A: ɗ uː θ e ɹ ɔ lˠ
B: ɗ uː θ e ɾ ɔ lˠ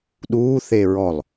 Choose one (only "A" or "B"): A